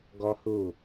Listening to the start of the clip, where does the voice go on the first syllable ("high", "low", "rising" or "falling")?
high